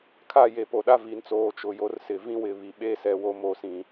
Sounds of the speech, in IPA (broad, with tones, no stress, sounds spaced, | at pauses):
kʰ a˦˨ j e˨ p o˨ ɗ a˦ v i˨ n t͡s oː˨ t͡ʃ ʊ˨ j o˦ r s ɪ˨ v ĩ˦ w ɪ˨ β i˨ ɓ e˦ s ɛ˨ w o˦ m o˨ s ĩ˨